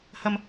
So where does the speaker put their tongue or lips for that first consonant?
throat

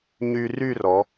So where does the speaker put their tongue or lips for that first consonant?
palate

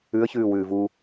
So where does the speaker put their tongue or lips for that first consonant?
palate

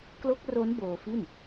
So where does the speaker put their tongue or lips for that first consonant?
velum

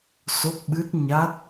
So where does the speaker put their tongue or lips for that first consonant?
tongue tip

